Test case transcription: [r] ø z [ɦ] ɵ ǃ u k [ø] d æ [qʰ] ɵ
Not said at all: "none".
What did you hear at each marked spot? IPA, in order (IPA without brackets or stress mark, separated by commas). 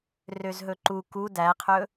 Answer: r, ɦ, u, qʰ